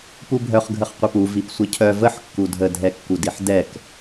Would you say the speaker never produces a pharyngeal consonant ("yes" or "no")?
no